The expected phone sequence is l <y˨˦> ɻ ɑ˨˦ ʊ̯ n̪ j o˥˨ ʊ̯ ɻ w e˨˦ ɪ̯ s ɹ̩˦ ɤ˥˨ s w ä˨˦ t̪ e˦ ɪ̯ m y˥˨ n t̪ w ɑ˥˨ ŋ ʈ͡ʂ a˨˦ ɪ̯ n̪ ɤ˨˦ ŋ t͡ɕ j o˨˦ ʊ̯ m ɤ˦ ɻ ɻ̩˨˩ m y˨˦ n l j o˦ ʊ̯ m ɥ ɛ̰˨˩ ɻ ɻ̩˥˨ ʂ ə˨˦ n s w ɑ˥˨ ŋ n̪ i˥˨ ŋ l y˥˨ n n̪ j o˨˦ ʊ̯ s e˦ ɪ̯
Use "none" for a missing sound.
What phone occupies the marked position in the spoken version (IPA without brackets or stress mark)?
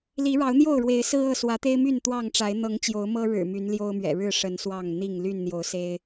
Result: i˨˦